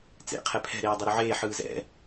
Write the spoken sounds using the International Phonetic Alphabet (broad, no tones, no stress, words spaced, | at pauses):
t͡sḛqʰɛ pʰɛ̤ɾeː dˤuɾuʕeː ħɯːzɛ̰